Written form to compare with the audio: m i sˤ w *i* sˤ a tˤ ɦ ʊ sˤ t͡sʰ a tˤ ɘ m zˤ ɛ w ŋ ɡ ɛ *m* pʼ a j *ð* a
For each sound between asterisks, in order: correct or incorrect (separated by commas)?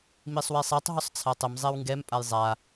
correct, correct, incorrect